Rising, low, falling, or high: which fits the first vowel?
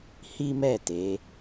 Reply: high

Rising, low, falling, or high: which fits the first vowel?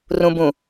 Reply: low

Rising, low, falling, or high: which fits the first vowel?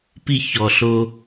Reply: low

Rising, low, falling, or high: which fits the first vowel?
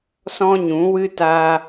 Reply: high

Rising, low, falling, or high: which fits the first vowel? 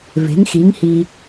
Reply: rising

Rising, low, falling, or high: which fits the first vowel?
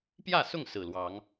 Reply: falling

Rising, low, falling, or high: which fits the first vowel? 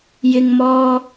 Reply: high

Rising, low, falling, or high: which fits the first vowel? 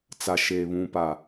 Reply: low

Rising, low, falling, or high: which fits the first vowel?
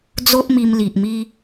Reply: high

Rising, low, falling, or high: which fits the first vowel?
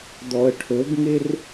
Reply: low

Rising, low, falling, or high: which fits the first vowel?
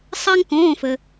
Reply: high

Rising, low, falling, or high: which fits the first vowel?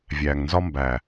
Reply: low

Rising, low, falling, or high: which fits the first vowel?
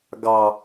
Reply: low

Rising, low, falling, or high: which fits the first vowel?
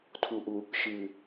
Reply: low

